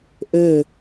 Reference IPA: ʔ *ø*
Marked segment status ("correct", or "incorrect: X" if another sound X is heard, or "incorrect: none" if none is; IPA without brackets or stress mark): correct